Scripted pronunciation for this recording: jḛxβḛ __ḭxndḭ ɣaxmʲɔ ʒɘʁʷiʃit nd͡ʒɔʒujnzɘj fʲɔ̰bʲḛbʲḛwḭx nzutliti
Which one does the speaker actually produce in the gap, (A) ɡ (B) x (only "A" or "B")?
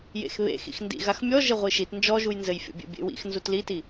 B